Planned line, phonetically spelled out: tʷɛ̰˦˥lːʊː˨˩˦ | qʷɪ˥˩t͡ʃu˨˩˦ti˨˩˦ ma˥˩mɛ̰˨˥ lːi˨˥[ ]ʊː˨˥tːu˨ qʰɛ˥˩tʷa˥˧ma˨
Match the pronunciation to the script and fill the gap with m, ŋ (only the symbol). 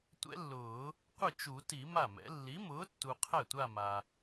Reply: m